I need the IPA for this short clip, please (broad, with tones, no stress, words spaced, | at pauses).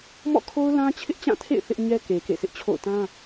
mɔ̰˦˨kʰo˦ʊ̯ lã˦t͡ɕʰɪ˦ʔt͡ɕã˦˨tʰḛ˦˨ɪ̯ θɪ˦ʔɲɛ˦ke˨ kḛ˦˨sʰɪ˦ʔt͡ɕʰo̰˦˨ʊ̯ tã˦